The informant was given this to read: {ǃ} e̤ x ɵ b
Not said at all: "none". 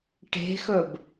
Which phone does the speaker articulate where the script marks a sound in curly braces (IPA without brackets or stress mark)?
ʈ